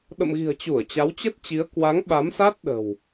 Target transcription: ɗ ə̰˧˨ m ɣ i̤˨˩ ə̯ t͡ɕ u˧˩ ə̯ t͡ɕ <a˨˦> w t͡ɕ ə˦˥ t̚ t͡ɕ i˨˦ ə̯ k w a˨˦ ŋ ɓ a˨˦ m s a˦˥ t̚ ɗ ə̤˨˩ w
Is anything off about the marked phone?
no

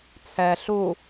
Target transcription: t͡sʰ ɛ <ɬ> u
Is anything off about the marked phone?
no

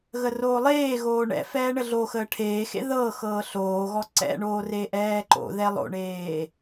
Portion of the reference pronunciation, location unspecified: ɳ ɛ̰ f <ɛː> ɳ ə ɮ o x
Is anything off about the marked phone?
no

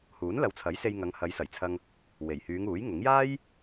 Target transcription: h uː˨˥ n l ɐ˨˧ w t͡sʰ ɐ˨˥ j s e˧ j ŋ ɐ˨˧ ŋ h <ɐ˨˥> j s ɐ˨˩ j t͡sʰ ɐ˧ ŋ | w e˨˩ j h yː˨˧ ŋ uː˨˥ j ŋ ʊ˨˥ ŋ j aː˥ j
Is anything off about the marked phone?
yes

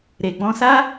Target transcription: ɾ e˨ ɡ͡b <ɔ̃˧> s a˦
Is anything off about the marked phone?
no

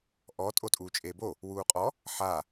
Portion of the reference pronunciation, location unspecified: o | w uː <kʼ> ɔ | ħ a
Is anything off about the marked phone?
yes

